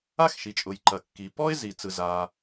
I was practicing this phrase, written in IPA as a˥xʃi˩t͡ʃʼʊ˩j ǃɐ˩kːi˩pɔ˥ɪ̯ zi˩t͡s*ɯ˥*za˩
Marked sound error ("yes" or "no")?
yes